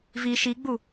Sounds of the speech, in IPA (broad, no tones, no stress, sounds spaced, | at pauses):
v i ʃ i ɡ͡b u